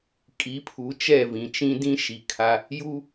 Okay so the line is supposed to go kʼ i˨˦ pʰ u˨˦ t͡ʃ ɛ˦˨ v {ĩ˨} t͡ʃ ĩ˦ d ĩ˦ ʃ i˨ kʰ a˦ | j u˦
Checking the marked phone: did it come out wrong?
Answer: no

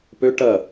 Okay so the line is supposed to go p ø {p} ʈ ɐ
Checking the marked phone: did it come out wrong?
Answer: yes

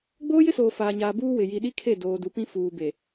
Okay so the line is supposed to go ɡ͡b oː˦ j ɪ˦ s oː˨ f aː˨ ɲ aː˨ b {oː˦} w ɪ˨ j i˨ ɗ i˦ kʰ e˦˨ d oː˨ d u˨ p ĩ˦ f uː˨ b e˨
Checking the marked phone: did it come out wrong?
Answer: yes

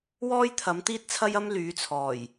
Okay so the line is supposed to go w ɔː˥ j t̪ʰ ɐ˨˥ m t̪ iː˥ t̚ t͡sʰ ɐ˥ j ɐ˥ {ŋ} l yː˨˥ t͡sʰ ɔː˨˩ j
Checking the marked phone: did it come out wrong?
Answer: yes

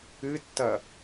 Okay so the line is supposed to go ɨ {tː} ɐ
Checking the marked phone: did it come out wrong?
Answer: no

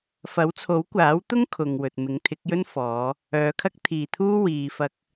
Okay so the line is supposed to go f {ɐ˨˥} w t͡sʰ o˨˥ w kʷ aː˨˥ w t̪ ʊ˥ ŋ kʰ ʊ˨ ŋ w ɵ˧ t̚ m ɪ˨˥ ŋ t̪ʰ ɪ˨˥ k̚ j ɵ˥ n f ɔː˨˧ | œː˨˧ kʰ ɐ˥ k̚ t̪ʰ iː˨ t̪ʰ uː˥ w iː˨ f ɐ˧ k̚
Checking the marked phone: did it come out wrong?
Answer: no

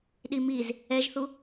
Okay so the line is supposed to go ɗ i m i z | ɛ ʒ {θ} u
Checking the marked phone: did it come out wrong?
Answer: no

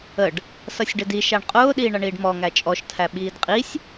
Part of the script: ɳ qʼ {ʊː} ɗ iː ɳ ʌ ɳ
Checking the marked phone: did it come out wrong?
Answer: no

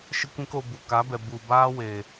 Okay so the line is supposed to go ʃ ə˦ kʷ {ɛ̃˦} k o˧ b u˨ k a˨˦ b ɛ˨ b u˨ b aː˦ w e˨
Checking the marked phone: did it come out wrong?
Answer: no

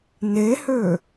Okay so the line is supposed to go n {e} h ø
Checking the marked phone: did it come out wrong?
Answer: no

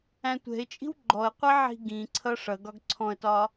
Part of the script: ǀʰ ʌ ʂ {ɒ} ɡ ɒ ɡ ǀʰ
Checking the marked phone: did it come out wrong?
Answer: yes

